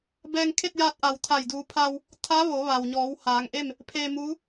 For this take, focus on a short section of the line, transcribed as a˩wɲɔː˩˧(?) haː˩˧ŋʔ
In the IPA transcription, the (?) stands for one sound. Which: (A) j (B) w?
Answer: B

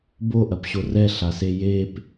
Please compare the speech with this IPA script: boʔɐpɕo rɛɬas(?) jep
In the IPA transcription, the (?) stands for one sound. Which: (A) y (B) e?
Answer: B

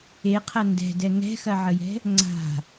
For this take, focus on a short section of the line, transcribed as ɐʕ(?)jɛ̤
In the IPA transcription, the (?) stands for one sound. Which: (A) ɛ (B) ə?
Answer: B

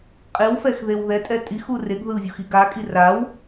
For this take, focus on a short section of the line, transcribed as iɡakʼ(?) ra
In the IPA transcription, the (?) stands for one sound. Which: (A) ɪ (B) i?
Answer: B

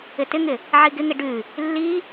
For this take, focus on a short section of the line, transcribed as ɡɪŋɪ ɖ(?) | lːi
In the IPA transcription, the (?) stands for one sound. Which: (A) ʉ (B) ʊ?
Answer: A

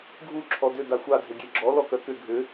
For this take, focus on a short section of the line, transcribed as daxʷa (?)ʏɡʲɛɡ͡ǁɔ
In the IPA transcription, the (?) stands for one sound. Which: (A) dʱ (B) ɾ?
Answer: A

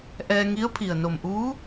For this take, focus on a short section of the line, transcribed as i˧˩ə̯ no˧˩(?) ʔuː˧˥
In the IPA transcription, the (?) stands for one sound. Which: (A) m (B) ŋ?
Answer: A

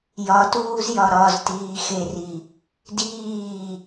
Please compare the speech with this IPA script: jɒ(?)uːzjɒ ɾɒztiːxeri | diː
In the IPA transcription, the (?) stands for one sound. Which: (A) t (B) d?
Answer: A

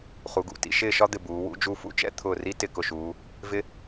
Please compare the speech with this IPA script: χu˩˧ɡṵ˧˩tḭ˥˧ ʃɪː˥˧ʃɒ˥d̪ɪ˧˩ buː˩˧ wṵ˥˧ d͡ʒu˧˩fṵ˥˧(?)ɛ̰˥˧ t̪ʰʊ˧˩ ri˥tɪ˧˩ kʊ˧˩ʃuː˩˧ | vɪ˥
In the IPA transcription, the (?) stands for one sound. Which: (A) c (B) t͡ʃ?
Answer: B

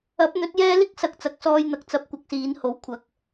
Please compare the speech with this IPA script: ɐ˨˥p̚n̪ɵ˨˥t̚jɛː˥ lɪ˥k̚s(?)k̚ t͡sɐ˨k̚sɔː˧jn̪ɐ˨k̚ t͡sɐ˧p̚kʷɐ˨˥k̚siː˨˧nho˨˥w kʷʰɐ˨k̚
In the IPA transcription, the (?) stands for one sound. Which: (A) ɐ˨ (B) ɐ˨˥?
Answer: A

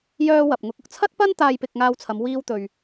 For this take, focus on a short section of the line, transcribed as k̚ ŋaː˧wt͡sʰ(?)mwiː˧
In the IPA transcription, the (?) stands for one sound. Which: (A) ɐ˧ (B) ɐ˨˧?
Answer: B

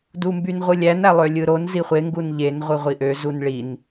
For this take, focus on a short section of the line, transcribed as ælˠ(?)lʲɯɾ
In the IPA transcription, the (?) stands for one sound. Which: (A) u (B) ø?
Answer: B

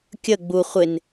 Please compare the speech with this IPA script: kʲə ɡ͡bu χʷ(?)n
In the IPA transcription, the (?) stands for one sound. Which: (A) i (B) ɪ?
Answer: B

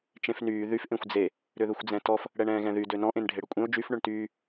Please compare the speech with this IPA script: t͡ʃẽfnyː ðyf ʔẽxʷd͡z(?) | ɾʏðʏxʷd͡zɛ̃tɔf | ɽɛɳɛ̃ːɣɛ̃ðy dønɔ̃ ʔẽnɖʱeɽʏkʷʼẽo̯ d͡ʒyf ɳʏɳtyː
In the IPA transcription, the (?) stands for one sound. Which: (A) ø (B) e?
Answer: B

